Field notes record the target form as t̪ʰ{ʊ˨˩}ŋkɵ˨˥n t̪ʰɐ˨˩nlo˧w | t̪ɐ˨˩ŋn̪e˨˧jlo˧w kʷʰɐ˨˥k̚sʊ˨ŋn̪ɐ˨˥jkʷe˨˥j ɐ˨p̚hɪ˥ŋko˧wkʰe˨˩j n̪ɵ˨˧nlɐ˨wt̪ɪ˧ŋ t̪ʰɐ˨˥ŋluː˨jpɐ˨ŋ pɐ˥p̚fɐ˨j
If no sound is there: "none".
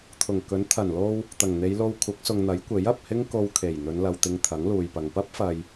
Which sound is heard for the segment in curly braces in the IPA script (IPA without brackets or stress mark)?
ʊ˨˩